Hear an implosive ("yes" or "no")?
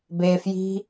no